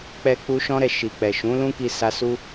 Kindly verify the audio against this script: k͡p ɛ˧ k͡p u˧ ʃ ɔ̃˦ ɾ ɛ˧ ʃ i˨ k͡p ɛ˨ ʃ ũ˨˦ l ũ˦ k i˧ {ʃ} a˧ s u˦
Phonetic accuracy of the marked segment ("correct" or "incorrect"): incorrect